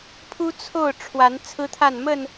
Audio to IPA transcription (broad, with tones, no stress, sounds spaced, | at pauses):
pʰ u˦ t͡sʰ o˥˨ ʊ̯ ʈ͡ʂʰ w a˨˦ n t͡sʰ ɹ̩˦ t̪ʰ a˥˨ n m ə˥˨ n